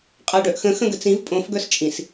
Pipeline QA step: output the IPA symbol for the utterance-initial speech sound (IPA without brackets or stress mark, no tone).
qʼ